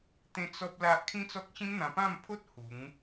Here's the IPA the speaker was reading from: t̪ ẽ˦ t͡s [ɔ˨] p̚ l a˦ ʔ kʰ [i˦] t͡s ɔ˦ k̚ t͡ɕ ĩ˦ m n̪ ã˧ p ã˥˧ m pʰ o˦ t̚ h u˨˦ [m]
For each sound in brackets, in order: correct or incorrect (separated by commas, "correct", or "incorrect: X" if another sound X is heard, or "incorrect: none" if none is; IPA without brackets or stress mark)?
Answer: incorrect: ɔ˦, incorrect: ĩ˦, incorrect: ŋ